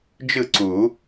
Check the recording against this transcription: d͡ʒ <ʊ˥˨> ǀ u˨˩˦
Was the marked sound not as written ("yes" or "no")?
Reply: yes